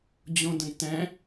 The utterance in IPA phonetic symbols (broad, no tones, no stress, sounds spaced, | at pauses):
d͡ʑ õ d ə̃ ɡ t ɛ̃